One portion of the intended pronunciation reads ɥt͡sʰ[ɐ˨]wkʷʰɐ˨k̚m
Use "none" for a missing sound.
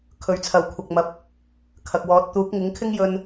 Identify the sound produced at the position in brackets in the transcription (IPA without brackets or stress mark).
ɐ˨